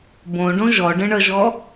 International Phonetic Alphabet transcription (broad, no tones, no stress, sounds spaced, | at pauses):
b õ ɖ õ ʒ ɔ ɖ ə̃ ɳ ʌ ʒ ɔ